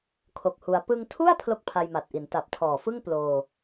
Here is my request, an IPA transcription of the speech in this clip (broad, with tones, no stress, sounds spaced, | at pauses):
kʰ o˨˩ k̚ h u˩˦ a̯ p ɯ˧ ŋ tʰ u˥˩ a̯ pʰ l o˥˩ k̚ pʰ a˧ j m a˨˩ t̚ ʔ i˩˦ n t a˨˩ p̚ tʰ ɔː˨˩ f ɯ˥˩ ŋ p l oː˧